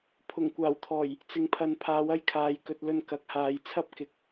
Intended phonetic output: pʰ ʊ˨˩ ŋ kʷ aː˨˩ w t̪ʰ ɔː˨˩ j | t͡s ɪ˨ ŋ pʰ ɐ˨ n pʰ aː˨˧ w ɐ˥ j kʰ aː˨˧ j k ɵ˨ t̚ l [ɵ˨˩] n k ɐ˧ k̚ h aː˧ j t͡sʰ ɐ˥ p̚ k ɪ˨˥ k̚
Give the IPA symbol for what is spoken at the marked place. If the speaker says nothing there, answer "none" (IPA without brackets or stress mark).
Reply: ɵ˧